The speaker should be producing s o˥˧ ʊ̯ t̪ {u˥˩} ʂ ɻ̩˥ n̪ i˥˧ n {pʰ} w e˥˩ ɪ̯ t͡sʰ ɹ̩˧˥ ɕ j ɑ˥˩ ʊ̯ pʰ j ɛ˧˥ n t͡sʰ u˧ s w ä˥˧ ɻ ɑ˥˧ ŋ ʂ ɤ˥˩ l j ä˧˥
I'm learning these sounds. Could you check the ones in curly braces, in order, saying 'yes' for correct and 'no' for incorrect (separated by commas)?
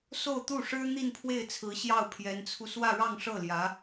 yes, yes